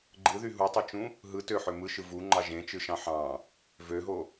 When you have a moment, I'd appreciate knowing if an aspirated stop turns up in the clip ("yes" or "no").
no